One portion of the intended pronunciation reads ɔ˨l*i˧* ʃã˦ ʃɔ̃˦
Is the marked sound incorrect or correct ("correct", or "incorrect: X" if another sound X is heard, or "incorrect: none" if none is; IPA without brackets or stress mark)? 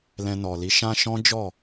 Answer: incorrect: i˨˦